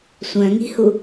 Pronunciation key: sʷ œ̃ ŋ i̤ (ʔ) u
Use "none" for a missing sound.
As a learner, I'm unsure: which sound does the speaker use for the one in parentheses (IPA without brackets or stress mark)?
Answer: h